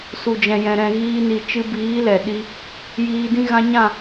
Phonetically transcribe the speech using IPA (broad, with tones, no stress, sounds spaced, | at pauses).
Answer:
s u˨ d͡ʒ ɛ̃˨ j ɛ̃˨ ɾ ɛ̃˨ ɣ iː˧ n i˨ t͡ʃ ɨ˧ b iː˨˦ l ɛ˨ ɗ i˧ | j iː˧ d ĩ˦ ɣ ã˧ ɲ ã˦˨